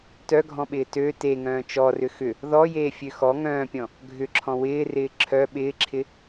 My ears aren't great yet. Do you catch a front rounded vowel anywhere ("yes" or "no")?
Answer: yes